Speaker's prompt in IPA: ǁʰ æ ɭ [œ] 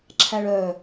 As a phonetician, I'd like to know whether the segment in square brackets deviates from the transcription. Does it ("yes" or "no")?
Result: no